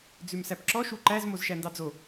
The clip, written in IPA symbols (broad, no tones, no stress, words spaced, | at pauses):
d͡zʉmsæpǁɔ ʃuǃæz mozʃændɑd͡zo